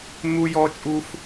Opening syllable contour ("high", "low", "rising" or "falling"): high